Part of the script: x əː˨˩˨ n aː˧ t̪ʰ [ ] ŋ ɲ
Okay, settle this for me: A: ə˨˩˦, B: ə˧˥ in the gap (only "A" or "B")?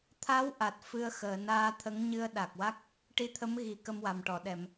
B